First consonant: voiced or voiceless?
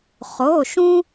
voiceless